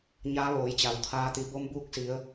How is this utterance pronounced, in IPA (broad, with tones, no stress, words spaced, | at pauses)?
ɲaː˧˥ʋoː˩˧jt͡ɕa˩w t̪ʰaː˧ t̪i˩˧bo˧˥mbuː˧˥k̚si˩˧ə̯